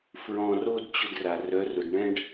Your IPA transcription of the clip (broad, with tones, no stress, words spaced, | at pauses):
fɹɔ̃˧ro˦d t͡ɕʊ˧dra˨ rœ˨˦rʊ˨d ɳɛ̃˦ɖ